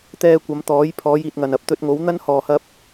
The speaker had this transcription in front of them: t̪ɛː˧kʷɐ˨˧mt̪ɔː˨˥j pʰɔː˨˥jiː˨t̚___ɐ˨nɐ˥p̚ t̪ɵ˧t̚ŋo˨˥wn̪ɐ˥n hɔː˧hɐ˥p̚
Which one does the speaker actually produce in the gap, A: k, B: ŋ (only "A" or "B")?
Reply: B